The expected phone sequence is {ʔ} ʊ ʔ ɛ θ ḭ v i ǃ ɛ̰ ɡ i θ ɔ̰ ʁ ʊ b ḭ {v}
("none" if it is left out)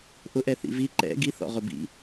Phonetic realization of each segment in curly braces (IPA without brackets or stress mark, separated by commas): ʔ, none